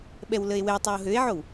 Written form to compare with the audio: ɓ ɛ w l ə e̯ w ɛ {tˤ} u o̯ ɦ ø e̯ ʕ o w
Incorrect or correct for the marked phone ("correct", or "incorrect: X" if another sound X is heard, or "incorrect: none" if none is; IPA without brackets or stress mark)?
correct